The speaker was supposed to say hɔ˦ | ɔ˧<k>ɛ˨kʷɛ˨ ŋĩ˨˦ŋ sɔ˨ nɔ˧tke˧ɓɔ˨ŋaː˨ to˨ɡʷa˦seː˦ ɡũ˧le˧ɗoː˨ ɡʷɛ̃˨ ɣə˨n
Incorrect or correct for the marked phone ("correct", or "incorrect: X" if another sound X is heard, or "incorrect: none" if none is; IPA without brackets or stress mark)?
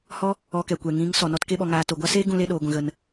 correct